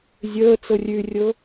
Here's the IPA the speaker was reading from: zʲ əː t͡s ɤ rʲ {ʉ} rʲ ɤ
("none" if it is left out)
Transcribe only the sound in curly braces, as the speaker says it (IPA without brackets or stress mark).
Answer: ʉ